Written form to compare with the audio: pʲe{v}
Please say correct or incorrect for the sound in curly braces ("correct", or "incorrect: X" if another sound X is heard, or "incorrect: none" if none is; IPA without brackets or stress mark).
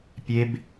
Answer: incorrect: b